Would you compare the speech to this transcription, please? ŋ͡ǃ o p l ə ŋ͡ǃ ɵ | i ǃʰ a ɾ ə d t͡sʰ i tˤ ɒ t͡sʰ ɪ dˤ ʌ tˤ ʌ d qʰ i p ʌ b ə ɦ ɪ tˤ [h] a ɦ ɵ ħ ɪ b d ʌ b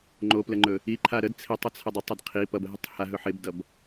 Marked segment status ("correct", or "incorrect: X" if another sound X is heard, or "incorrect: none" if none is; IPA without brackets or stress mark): correct